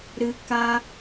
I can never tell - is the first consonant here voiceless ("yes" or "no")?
no